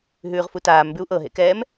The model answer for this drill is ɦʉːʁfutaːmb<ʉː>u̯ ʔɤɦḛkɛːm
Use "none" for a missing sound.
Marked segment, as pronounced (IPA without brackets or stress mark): ʉ